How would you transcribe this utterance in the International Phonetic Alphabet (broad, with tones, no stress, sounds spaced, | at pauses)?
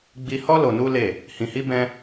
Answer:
ɡ͡b i˧ h ɔ˦ l o˧ n u˦ l e˦˨ | h ĩ˧ h i˦ b ɛ̃˦